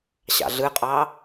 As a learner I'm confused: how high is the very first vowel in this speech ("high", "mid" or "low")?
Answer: low